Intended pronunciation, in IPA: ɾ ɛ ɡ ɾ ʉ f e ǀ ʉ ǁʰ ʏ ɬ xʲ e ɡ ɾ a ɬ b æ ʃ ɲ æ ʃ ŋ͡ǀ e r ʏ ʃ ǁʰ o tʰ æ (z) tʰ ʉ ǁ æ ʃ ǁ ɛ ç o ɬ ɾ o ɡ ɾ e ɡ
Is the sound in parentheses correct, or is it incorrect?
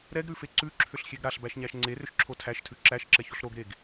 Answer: incorrect